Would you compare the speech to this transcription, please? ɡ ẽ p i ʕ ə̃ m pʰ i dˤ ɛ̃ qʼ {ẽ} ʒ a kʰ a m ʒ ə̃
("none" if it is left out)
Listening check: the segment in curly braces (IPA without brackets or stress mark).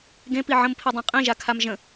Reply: ĩ